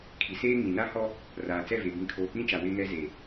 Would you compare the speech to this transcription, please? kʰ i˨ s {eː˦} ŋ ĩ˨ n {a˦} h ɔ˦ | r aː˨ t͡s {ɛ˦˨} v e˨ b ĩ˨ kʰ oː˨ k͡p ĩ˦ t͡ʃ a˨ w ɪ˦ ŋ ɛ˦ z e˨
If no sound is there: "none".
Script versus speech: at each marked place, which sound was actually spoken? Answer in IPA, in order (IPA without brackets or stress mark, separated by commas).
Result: eː˦, a˦, ɛ˦˨